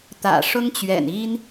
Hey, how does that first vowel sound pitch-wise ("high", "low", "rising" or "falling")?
low